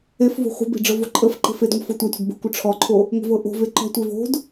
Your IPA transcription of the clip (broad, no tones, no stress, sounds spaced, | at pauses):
e f v o̤ χʷ e̤ b e̤ ɖ͡ʐ ɤ v o ǃʼ ə f ǃ e̤ f e d ŋʷ ə f ɤ tʷ ɑ tʷ e̤ d b ə̤ kʷ ə ʈ͡ʂʰ ɔ ǃʰ o | ŋʷ ə̤ v ɤ ʔ o̤ v e ǃ ɔ̤ tʷ e v o̤ d